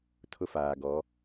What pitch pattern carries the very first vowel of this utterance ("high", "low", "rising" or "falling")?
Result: high